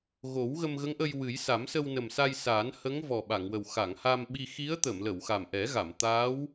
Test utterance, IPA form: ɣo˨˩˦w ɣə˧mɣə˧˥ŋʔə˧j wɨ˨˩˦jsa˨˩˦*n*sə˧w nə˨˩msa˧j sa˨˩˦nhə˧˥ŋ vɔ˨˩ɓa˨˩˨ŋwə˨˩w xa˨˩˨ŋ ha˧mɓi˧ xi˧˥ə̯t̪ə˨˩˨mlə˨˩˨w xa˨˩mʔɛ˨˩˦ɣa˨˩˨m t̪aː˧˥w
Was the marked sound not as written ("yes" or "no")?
yes